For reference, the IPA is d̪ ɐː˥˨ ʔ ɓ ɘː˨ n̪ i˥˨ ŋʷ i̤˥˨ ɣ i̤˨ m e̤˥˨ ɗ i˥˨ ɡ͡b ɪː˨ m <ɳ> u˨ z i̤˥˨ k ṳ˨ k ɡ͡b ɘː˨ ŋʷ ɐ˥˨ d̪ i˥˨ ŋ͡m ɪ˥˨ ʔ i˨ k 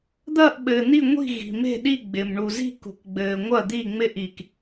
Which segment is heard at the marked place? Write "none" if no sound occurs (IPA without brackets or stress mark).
ɳ